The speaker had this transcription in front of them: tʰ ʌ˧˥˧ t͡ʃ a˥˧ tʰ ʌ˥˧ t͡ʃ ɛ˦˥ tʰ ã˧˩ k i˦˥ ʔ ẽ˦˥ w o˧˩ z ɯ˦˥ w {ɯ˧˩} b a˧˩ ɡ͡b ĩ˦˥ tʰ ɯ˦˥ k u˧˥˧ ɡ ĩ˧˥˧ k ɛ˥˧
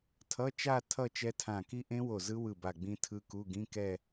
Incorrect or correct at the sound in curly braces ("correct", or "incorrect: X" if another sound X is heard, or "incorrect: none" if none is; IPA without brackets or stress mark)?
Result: correct